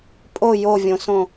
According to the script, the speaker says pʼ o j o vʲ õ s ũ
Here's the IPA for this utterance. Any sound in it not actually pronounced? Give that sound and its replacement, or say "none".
ũ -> õ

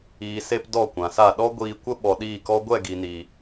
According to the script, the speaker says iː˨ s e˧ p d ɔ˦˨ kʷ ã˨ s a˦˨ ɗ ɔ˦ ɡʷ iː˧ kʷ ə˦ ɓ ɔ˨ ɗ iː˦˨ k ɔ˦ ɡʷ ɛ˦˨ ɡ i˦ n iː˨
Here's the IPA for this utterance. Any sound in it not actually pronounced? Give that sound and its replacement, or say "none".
i˦ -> i˨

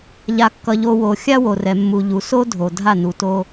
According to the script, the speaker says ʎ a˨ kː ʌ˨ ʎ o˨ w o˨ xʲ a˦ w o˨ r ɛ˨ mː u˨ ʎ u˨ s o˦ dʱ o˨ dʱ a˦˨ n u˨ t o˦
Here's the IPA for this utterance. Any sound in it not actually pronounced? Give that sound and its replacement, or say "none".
none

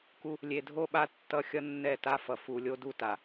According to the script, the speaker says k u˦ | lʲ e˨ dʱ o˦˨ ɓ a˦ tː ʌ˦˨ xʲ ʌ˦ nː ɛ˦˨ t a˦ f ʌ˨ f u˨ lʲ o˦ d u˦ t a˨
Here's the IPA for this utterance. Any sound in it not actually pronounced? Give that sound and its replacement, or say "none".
none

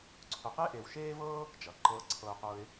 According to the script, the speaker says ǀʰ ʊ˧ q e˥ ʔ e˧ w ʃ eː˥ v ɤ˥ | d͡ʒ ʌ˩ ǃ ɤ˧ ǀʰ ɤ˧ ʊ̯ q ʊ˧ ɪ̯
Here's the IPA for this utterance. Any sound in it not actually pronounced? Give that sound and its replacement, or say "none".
none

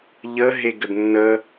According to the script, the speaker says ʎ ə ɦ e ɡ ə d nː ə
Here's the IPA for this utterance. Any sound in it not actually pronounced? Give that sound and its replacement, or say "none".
none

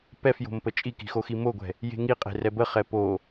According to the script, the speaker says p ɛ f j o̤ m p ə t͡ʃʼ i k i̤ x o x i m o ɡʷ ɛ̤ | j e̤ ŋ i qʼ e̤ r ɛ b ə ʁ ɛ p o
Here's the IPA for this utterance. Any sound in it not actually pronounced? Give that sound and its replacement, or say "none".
ʁ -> χ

